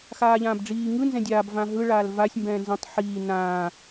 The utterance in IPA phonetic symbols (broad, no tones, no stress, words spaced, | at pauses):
xaːʎãːbɖ͡ʐiː ŋɯnzɛ̃ dʲaːbvã ɦɯɭaːl vasʲ mbɛ̃ːnzɛ̃tˤ ħiː nãː